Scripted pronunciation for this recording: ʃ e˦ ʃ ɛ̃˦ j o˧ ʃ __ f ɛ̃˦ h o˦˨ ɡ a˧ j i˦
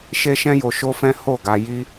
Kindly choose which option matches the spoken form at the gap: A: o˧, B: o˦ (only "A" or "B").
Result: B